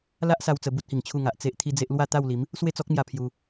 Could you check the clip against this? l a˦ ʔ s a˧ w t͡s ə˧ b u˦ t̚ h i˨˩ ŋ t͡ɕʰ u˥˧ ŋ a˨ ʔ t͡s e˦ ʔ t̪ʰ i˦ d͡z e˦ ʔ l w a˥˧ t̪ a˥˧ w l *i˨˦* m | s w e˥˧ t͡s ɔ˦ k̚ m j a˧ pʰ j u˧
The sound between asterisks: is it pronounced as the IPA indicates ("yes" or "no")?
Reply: yes